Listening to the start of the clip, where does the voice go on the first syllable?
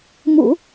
low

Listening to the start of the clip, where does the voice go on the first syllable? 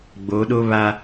rising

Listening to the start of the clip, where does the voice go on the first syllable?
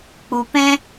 low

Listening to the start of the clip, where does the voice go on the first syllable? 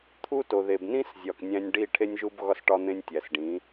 high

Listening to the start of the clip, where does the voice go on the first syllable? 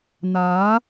rising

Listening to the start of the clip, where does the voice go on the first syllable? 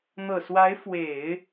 low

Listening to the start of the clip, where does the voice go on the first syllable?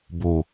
low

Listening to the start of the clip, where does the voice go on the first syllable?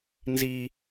low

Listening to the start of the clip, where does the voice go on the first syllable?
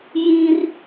high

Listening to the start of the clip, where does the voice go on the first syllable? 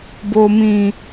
low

